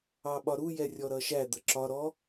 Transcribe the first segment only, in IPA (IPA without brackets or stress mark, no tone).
ɑ